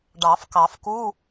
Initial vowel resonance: oral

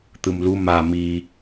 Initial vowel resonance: oral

